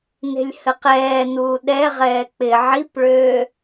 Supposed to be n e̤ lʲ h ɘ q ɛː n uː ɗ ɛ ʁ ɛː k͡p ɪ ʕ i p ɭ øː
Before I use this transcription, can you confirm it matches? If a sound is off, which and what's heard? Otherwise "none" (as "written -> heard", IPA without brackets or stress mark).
none